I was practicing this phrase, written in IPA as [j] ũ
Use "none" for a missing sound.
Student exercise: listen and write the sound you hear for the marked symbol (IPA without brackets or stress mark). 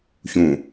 ç